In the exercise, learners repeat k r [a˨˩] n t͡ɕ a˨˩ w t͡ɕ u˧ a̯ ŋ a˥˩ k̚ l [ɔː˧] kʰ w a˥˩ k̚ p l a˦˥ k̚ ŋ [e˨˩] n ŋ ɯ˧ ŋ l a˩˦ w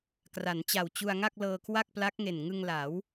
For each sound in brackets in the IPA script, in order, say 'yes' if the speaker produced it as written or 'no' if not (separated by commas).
no, no, yes